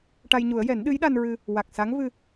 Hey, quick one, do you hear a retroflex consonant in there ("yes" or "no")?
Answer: yes